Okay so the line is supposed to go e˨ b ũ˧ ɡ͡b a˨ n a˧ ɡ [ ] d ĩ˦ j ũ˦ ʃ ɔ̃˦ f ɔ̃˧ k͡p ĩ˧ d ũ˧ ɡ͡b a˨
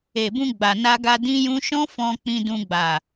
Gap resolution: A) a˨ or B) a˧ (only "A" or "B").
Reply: B